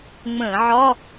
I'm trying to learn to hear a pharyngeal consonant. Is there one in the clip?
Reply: yes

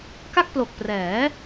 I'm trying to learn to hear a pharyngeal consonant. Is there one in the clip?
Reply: no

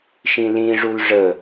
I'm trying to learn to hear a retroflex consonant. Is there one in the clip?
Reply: yes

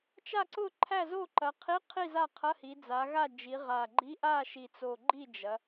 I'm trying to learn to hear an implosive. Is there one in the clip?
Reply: no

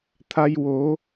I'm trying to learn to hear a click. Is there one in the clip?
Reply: no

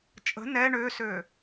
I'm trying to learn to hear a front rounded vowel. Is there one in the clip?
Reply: yes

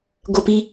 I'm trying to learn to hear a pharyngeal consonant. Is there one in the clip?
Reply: no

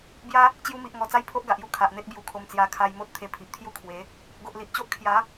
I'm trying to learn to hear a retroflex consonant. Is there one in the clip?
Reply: no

